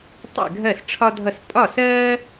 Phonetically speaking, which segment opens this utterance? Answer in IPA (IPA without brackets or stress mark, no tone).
tˤ